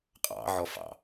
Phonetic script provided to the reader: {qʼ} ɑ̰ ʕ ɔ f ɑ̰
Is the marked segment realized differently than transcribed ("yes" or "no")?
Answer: no